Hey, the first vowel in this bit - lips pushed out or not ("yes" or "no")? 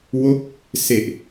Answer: yes